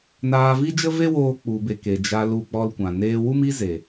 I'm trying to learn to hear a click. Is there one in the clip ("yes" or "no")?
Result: no